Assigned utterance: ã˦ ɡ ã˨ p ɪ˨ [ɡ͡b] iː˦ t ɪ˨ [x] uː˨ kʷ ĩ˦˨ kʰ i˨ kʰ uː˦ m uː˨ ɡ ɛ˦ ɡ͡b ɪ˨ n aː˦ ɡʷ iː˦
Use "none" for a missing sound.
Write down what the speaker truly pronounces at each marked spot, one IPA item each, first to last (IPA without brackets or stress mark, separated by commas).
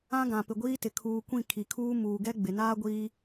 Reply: ɡʷ, kʰ